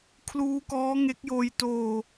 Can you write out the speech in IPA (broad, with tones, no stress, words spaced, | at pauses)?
kʰluː˦˥kɔː˦˥ ŋe˦˥k̚joː˧j toː˧